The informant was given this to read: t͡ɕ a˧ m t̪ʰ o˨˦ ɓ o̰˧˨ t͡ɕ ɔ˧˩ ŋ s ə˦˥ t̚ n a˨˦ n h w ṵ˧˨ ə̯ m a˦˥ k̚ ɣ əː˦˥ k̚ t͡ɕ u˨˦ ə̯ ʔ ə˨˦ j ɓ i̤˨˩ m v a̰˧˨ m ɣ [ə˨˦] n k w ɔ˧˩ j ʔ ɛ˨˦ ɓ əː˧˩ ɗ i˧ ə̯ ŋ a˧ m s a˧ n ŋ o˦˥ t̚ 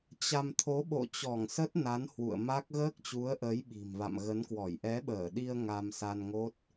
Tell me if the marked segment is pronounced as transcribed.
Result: yes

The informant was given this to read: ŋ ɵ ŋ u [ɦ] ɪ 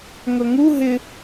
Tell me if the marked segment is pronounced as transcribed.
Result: yes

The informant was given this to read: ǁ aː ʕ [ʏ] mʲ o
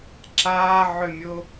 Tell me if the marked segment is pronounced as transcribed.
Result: yes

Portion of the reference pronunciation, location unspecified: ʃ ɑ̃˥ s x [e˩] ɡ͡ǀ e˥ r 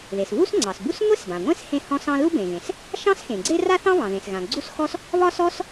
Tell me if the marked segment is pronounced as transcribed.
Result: no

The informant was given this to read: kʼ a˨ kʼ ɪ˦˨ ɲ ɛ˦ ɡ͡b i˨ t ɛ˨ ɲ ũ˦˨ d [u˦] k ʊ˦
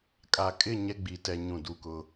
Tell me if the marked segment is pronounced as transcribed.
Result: yes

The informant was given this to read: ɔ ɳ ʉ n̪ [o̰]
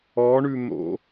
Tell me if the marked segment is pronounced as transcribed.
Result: yes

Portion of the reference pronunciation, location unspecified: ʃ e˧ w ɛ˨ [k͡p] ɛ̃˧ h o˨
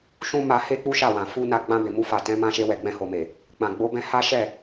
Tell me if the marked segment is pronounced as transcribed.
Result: no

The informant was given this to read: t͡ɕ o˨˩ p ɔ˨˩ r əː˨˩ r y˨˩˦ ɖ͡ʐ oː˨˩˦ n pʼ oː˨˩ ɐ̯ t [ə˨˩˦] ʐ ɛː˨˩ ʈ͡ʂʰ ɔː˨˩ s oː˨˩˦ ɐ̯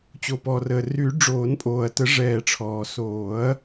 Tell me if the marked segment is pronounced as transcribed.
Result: yes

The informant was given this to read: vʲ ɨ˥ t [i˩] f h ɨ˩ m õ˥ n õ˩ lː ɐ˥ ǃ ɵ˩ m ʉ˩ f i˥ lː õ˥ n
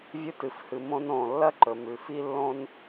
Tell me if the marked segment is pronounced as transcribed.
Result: no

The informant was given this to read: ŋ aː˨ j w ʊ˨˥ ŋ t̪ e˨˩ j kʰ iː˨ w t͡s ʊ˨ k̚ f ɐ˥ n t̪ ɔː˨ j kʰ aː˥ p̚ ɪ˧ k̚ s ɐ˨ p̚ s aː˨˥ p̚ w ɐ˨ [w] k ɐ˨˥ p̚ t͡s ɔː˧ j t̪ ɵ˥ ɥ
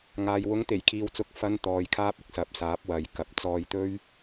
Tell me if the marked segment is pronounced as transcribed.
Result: no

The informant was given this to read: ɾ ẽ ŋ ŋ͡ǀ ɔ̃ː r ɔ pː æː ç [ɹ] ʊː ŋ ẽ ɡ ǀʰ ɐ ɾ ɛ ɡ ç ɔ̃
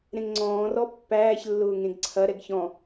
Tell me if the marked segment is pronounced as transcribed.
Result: no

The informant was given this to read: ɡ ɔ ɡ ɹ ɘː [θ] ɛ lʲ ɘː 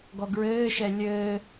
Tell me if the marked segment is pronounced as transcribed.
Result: no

